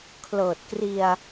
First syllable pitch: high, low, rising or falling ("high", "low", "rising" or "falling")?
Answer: low